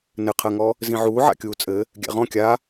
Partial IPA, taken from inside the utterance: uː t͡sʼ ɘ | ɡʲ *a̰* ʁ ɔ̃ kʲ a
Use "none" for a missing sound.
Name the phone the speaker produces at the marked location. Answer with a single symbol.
æ̰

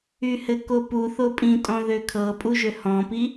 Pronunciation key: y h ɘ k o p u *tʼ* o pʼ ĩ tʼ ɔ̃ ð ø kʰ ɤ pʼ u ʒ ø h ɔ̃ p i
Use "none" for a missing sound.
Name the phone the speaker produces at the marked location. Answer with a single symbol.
θ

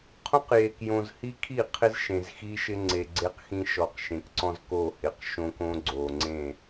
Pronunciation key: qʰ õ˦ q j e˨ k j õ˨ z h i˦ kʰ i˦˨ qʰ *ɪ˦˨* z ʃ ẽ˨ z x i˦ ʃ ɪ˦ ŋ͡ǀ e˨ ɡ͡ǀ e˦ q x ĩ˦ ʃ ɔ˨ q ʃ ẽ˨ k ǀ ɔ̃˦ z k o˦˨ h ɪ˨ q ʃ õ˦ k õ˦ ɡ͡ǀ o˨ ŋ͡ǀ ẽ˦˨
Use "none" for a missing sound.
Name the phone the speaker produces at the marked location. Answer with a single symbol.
ɪ˦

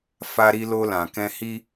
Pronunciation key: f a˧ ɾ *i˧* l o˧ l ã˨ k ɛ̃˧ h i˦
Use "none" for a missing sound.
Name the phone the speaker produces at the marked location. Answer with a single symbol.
i˧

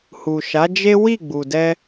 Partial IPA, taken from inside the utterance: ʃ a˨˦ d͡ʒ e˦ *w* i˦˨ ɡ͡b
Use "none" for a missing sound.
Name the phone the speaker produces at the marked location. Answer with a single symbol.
w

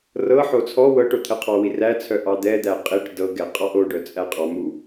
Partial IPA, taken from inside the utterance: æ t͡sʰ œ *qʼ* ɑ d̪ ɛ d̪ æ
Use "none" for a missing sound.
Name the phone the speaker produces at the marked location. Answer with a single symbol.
ʔ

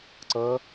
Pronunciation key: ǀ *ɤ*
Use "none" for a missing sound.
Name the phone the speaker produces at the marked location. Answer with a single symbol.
ɤ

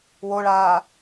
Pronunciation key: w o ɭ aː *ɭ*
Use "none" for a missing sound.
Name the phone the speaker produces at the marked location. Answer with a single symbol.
none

